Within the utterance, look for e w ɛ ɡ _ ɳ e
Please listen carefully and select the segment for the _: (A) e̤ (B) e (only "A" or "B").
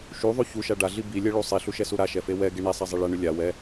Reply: B